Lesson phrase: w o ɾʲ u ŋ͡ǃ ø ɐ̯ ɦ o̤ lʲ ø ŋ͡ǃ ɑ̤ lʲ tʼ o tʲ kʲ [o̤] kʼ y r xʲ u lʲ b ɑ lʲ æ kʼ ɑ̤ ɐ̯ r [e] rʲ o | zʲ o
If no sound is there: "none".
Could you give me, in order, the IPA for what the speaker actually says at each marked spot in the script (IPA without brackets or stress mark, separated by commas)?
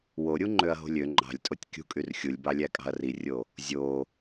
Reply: ṳ, i